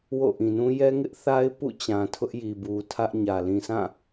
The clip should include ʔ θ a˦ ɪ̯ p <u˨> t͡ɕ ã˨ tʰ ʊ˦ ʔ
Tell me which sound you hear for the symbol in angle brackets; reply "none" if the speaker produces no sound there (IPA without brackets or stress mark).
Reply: ṵ˦˨